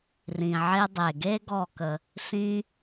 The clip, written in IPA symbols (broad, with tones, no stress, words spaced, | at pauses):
rĩ˩ʕe˧ dˤe˩ɡe˥ ɡɔ˧˩kə˩ | sĩ˧